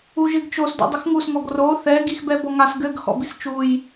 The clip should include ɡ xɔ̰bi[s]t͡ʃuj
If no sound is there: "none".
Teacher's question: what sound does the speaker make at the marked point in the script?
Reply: s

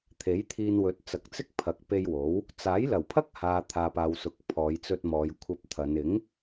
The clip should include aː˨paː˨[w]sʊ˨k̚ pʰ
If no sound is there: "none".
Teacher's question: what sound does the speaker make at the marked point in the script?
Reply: w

